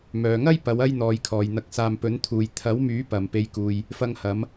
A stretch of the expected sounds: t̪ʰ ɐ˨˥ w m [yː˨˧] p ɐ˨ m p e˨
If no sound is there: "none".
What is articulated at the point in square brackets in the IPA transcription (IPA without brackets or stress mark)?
yː˨˥